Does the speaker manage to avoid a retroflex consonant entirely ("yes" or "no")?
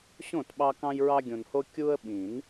yes